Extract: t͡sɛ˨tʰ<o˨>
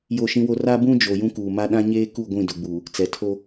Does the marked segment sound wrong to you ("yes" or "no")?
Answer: yes